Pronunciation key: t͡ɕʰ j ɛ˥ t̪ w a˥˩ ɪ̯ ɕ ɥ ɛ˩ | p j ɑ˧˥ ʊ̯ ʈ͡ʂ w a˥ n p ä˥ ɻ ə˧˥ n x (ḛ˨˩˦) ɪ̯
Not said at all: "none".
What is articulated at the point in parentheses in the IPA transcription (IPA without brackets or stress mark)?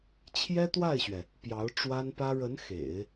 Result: ḛ˨˩˦